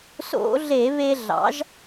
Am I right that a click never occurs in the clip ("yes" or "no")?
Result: yes